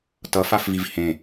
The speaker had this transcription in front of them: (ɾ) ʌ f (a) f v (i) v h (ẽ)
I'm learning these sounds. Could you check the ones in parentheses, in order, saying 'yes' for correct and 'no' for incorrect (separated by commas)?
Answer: no, yes, yes, yes